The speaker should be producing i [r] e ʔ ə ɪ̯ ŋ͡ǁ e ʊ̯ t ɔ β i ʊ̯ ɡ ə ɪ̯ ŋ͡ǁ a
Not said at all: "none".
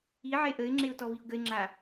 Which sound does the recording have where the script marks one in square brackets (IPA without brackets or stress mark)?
ʕ